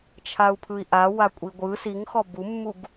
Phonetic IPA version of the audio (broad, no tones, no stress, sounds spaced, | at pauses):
t͡ʃʰ a u̯ pʰ ɯ i̯ ʔ a w a kʷʼ i ɡʷ ɯ s i ŋ x ɔ b u mː u ɡ